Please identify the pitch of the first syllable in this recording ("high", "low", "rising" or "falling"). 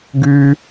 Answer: high